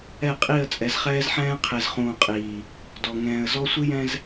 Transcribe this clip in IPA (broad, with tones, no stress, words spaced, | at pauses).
ɛ˦˨qʼi˦˨ə̯ t͡sʼɛ˨zχɛː˦zħɛ̃ː˦ qʰe˨zχũː˨qʼiː˨ | dɔ˨ ŋɛ̃ː˨ə̯zɔ˦ sʷi˦jɛ̃˦z